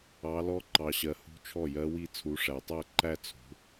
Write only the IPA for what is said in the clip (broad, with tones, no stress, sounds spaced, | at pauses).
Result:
ɑ˨˦ l ɔ˦˥ ǃ ɑ˨ ɕ ɜ˨ h ṳ˦˥ t͡ʃʰ ɔ˥˩ j ɜ˦˥ w i˥˧ t͡sʰ u˨˦ ʂ æ˨ tˤ æ˥˧ ǃ æ˥˧ t͡sʰ ṳ˨˦